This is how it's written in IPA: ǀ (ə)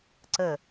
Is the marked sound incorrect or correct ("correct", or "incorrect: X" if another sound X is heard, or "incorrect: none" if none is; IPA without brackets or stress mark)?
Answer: correct